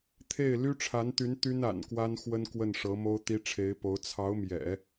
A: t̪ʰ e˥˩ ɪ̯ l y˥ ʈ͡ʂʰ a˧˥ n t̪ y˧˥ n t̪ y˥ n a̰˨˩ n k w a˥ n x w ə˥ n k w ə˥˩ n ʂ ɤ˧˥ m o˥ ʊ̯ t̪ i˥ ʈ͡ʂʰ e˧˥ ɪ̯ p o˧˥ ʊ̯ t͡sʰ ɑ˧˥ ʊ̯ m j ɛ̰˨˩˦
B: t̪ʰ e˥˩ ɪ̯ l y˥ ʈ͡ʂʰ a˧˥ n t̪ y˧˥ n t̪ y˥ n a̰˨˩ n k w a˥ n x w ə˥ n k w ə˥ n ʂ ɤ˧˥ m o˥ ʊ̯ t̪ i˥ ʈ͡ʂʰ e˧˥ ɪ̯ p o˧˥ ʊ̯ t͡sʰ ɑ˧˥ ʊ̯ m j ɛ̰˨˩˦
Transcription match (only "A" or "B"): A